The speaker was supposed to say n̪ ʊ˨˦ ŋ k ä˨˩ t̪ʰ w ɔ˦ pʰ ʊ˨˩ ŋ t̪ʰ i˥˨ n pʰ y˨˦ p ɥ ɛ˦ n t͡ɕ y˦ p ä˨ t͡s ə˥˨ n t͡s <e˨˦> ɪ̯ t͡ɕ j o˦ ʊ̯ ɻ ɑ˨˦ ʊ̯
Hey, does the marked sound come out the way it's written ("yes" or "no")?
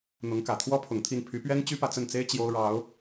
no